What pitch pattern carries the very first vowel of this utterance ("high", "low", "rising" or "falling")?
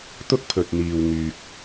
high